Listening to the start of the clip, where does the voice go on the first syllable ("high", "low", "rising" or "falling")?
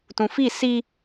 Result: low